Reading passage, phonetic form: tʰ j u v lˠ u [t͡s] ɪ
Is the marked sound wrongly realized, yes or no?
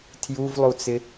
no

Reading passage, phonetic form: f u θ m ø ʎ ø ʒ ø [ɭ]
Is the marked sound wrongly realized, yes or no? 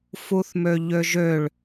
no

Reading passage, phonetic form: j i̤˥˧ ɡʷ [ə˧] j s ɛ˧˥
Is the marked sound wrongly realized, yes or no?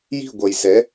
yes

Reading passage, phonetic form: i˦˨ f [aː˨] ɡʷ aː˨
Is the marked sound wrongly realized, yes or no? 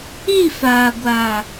no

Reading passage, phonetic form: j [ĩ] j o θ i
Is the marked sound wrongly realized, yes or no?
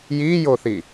yes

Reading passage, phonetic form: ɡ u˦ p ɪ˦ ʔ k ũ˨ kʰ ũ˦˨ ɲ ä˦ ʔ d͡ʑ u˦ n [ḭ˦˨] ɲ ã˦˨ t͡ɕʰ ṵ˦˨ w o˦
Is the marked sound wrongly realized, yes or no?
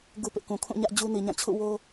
yes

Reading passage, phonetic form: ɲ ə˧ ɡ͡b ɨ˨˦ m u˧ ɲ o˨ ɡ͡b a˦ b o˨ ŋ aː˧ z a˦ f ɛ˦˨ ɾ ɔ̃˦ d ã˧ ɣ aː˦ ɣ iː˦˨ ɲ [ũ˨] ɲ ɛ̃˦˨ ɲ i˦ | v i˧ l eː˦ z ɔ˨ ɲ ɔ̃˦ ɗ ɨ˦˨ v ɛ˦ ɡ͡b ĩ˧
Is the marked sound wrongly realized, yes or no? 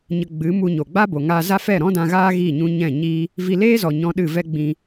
yes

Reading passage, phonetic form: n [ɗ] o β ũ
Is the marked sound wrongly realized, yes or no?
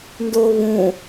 yes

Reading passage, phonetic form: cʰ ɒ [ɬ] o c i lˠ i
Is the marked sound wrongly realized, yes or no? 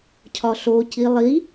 no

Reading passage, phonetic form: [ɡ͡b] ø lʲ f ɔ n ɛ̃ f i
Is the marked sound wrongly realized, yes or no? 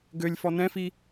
yes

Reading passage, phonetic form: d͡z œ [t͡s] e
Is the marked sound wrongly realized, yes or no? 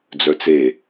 no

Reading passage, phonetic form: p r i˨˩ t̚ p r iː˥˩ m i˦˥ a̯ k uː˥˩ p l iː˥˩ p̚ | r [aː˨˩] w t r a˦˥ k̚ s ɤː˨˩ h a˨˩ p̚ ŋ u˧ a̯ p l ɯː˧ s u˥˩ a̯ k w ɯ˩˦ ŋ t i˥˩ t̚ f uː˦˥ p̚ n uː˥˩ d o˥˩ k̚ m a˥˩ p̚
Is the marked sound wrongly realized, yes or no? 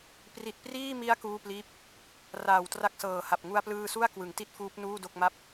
no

